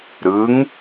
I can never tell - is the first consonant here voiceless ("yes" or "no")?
no